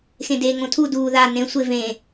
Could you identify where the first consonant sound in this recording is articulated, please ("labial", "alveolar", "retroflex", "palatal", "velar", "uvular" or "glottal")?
velar